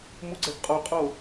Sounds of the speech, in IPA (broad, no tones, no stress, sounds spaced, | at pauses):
m u ɡ͡ǀ ɛ ɡ qʼ o qʼ o